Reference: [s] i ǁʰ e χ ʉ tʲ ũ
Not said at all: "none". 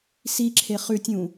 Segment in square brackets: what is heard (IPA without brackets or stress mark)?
s